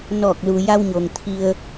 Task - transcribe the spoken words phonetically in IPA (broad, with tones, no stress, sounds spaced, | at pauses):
n ɔː˧˩ k̚ l u˩ j a˧ w ɲ oː˩ ŋ t̪ʰ i˧ ə̯